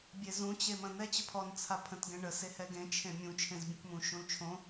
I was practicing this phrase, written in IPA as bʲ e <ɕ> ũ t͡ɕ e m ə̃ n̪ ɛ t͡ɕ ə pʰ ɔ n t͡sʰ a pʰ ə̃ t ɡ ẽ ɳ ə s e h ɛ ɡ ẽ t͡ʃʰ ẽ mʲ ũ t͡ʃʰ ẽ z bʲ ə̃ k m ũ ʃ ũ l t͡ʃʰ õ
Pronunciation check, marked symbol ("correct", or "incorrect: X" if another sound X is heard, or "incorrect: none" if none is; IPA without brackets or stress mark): incorrect: z